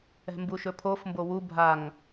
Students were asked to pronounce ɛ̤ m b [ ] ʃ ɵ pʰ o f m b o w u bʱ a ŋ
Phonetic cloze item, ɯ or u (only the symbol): u